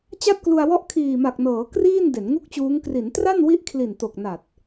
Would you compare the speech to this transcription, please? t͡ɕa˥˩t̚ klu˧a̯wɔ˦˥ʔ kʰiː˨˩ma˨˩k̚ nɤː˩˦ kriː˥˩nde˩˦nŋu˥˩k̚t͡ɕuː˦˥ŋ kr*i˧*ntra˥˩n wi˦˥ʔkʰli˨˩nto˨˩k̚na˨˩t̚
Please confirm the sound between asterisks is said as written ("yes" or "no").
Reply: no